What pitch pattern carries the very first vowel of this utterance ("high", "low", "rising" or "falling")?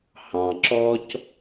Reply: low